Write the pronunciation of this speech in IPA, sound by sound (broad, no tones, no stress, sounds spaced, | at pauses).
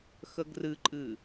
x ə ɡ r ɨ ǃʼ ɨ